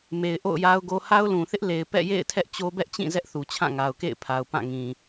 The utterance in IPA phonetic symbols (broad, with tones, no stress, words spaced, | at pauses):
me˨ɪ̯ ʔo̰˦˨ʊ̯ja˦ʊ̯ɡo˦ ha˦ʊ̯lũ˨θɪ˦ʔ le˨ɪ̯ pɛ̰˦˨ jḛ˦˨ɪ̯ tʰɛ˦ʔt͡ɕo˦bɛ˦ʔt͡ɕĩ˦˨ zɛ˦ʔθu˨t͡ɕʰã˦˨ ŋa˨ʊ̯kḛ˦˨ɪ̯pʰa˨ʊ̯ pã˦˨ŋĩ˨